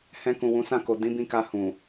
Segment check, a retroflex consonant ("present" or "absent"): absent